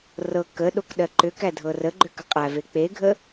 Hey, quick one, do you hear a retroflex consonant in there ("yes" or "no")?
no